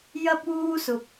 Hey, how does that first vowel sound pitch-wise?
high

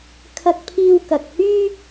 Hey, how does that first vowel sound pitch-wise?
high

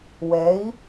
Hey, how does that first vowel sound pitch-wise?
rising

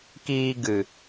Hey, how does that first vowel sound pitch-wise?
high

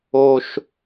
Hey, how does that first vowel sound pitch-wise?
high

